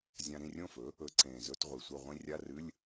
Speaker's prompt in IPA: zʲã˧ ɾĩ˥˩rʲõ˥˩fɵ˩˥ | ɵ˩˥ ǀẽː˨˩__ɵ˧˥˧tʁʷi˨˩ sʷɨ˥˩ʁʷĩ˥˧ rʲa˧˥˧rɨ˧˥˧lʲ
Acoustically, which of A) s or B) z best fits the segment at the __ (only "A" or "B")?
B